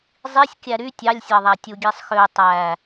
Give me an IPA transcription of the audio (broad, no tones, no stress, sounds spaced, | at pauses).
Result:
zˤ i sʲ kʲ æ ɾ y tʲ ɑ lʲ sʲ ɑ ðˤ æ tʲ u ɡʲ e sˤ x ø tˤ æ